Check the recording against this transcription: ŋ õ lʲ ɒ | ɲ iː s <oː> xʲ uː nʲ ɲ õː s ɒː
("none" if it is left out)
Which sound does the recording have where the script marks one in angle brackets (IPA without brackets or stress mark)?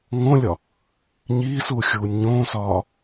uː